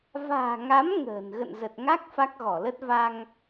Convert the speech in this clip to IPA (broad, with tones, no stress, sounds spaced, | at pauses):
v a̤ː˨˩ ŋ a˨˦ m ŋ ə̤ː˨˩ n ɣ ə̰˧˨ n z ə˨˩ t̚ ŋ a˦˥ k̚ f a˦˥ k̚ ɣ ɔ˧˩ l ə˦˥ t̚ v a˧ ŋ